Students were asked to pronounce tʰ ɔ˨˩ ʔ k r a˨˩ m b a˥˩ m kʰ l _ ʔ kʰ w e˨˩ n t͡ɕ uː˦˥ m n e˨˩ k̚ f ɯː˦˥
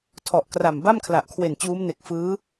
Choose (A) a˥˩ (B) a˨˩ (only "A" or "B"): B